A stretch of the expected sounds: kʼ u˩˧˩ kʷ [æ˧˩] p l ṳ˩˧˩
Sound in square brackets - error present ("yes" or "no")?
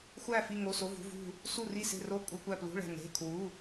no